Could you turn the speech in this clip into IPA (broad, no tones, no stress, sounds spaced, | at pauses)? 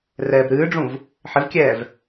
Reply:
r ɛː b ɾ ɨː ɖ͡ʐ ũ v | ħ ɪ v kʲ ɛː v